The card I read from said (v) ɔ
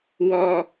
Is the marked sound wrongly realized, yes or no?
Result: yes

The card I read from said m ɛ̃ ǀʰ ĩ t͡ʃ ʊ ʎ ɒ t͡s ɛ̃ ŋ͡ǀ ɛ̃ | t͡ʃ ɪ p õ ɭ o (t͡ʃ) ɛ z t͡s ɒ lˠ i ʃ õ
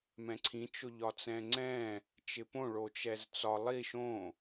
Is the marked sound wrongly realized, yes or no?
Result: no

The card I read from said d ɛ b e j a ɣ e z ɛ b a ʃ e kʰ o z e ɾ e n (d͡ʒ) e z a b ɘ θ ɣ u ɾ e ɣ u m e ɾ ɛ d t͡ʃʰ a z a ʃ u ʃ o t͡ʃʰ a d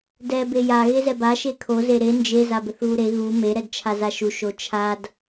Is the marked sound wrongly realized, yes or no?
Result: no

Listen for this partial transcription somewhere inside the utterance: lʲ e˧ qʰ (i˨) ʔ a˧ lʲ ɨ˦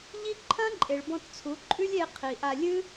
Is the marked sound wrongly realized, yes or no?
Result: no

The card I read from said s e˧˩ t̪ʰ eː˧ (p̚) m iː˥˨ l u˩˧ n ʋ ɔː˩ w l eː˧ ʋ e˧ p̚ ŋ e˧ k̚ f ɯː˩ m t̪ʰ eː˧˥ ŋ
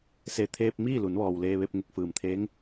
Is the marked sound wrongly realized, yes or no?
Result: no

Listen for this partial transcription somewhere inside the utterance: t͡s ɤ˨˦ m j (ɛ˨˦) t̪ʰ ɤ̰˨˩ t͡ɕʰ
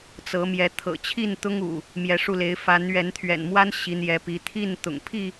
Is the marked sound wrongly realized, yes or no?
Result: no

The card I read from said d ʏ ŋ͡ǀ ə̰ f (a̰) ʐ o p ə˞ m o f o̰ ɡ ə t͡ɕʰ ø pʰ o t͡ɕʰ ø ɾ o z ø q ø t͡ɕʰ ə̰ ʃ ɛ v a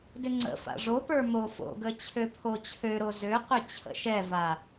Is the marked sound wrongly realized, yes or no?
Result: no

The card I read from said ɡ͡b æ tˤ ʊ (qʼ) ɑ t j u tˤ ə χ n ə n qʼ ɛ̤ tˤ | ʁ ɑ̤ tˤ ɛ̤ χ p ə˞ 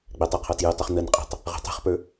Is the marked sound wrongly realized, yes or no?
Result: yes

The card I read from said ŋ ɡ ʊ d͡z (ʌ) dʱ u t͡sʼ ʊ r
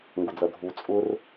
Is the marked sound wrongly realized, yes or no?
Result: no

